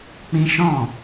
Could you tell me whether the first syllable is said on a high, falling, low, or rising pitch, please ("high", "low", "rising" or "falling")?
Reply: high